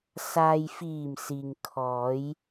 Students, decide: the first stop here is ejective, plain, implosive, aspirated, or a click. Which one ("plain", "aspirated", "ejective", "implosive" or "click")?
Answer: aspirated